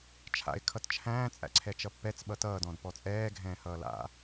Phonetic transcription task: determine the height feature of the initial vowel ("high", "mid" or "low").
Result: low